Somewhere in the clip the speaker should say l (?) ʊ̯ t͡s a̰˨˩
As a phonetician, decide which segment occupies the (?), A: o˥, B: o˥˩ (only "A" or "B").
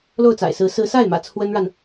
B